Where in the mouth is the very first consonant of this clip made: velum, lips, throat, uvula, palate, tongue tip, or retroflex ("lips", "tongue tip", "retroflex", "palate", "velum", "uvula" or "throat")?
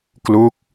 velum